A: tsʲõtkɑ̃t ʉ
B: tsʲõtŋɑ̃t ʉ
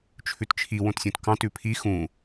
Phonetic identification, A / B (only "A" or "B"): A